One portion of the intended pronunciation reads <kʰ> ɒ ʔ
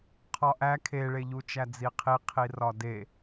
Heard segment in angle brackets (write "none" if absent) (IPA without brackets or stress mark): qʰ